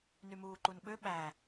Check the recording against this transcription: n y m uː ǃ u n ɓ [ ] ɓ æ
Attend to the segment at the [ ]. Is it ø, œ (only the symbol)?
ø